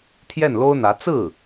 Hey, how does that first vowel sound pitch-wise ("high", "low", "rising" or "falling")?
falling